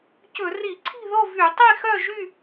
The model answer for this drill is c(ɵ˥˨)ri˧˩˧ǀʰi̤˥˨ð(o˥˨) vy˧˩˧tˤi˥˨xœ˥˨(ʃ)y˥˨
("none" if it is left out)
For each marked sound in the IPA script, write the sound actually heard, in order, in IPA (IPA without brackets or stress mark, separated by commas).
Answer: ɵ˧˩˧, o˥˨, ʒ